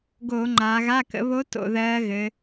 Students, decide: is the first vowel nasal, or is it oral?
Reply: oral